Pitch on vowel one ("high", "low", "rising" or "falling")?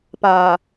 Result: low